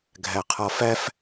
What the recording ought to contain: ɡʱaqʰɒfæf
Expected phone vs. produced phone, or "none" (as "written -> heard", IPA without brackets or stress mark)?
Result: a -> æ